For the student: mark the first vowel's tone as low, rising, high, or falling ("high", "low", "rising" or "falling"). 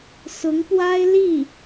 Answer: rising